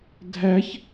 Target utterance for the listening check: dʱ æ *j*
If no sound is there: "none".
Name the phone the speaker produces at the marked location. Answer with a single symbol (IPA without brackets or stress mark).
ç